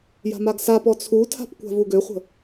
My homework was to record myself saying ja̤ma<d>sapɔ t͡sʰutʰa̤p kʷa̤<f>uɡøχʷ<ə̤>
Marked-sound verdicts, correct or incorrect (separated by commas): incorrect, incorrect, correct